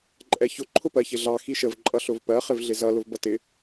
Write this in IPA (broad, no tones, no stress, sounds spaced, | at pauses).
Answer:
ǃʼ ɛ ç ʊ ǃʰ ʊ p ɜ ç ɪ ɮ ɑ x i ʃ ə v ǃʼ ʌ ɬ ʊ v p ɜ χ ɪ v ɮ ɪ z ʌ l ʊ v b ʌ t ɪ